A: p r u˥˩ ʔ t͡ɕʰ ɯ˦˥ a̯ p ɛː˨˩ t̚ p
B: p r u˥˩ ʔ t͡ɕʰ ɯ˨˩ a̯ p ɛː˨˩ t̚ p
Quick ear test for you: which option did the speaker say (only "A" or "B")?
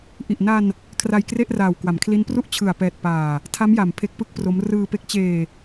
B